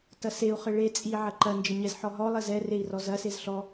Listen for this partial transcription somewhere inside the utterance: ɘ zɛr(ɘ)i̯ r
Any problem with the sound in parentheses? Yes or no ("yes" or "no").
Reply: yes